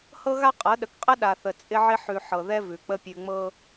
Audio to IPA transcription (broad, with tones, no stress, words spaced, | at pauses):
hɤ˦ɣa˦ qʼɤ˨˦ ɗə˨kqʼə˦ ɗa˨θə˨t͡sʼɪ˦ʕɪ˦ ħʉ˨ ħɤ˨ðɛ˦ vʉ˨k͡pə˦ pʲʉ˨ŋ͡mɤ˦